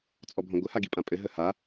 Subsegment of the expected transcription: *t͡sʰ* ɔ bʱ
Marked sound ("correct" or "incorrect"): incorrect